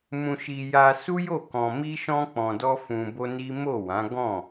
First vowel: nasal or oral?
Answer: nasal